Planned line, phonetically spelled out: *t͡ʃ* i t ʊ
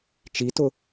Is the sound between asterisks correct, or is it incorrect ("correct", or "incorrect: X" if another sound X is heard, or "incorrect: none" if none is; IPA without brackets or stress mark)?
correct